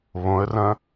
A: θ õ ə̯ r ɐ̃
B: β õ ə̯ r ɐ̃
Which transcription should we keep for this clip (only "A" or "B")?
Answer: B